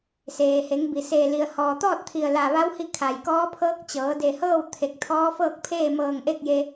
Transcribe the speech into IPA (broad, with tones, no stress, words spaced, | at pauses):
seː˩ he˩˧ŋbi˩ se˧˩ li˩ə̯hɔː˩t̪ɔː˥˨t̚ t̪ʰi˧˩ə̯la˧˩ʋa˧˥whi˧ kʰa˩jkɔː˧˥pʰɤː˧˥k̚t͡ɕɤː˩˧ de˧˩hɤː˥˨w t̪ʰe˧˩k̚t̪ʰɔː˧˥fɤː˥˨k̚pʰeː˥˨ mɤː˧˩ŋ ʔe˥˨k̚je˧